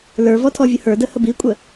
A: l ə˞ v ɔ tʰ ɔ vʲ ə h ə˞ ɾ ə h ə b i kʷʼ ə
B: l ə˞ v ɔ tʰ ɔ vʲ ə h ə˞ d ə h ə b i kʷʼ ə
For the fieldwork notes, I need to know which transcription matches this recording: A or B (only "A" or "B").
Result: B